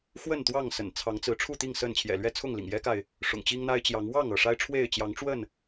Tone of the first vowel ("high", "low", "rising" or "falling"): falling